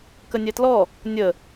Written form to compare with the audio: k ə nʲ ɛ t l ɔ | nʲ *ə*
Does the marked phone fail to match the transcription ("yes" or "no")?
no